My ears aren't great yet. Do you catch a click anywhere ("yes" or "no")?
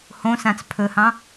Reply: no